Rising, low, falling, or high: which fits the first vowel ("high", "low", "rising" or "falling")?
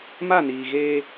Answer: falling